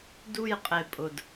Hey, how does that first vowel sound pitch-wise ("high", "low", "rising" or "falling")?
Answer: falling